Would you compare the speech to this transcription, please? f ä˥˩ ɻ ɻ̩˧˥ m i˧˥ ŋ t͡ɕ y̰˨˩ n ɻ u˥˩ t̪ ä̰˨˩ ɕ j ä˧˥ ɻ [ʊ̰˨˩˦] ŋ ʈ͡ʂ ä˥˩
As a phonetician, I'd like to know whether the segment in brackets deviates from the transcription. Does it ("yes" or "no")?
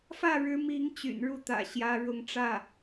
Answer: yes